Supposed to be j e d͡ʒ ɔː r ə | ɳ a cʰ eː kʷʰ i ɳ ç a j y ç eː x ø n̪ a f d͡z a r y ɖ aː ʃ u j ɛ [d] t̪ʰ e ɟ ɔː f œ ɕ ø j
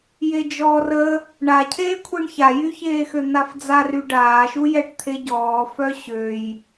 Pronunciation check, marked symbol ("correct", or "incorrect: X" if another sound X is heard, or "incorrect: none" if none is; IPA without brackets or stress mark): incorrect: ʈ